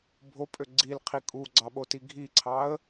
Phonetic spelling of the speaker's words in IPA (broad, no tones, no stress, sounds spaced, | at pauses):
bʱ o pʼ ø ɡ͡ǀ i l qʰ i kʼ u ɡ͡ǀ ɑ ɓ o t i ɡʱ i ǀʰ ɑ ə̯